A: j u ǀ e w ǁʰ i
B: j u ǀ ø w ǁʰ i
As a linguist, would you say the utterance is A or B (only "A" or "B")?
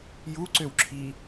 B